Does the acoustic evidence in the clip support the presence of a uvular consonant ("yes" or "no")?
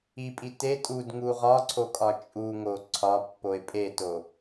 yes